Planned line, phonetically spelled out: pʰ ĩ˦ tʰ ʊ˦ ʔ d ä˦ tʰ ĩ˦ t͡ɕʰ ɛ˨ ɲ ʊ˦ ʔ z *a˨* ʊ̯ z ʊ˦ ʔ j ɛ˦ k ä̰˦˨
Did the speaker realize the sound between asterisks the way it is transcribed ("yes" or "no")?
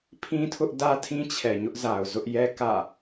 yes